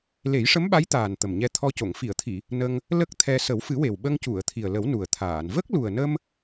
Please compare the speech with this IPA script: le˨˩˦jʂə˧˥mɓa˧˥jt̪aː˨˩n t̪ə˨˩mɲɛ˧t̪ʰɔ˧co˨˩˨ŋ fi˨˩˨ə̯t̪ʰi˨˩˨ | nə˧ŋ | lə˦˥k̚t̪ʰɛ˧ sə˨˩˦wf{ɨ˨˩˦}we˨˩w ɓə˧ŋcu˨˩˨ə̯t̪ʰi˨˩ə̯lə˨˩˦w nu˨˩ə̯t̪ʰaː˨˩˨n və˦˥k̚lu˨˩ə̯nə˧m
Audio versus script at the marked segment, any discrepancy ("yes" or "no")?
no